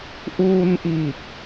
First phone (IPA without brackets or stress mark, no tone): ʔ